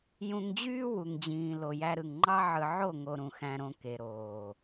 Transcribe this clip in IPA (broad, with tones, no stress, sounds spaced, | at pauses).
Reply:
j ũ˧ ŋ d͡ʑ yː˦ w u˨ ŋ d͡ʑ ĩː˨ l o˨ j æ˧ ɾ ɯ˨ ŋ ŋ͡ǃ ɑ˦ ʕ ɯ˧ ʕ o˦˨ ŋ o˧ ɾ ũ˨ x æ̃˧ ɾ õ˧ k e˨ ɾ oː˨